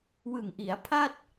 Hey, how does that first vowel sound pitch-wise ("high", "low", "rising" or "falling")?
low